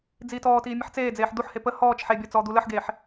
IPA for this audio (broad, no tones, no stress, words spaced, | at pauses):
d͡ziːtɔːtiː mʲəħt͡seːd͡zeːħ d̪uħhe pə hɔːt͡ʃ ħebʲɔ t͡sɔːd̪uləħɡeːħ